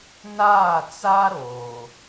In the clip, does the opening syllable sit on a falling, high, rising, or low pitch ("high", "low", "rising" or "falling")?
falling